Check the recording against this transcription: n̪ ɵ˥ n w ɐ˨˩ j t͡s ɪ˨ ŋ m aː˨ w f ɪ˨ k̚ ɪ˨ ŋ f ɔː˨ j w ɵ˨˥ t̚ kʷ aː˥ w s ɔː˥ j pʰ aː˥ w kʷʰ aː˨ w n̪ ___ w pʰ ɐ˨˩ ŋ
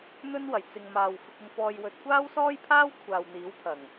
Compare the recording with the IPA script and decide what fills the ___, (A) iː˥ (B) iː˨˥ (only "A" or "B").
B